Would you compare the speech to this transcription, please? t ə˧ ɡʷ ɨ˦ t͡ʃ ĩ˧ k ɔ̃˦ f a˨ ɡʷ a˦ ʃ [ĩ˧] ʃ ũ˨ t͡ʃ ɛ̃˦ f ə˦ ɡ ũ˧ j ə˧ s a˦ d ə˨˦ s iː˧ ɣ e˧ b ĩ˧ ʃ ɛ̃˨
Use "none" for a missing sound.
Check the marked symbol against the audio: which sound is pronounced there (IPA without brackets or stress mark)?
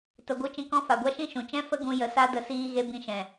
ĩ˦